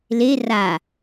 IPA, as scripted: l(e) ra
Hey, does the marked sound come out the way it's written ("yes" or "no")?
yes